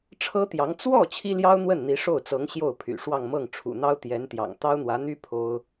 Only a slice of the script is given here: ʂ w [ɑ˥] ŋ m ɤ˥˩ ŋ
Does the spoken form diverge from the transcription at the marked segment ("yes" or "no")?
yes